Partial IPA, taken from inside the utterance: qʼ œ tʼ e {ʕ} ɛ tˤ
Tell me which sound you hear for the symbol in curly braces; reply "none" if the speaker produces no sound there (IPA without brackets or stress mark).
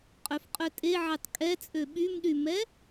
ʕ